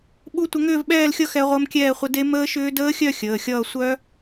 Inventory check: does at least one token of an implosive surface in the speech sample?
yes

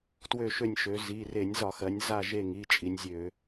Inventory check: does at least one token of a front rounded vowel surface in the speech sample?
yes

